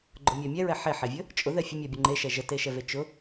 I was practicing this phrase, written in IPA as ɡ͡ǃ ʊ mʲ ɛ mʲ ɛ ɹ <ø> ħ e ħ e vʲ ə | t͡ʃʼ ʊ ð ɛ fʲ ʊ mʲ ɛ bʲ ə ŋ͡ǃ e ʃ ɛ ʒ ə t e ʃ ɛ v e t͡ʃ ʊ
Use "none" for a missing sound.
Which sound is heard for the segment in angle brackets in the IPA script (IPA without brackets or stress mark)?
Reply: ɛ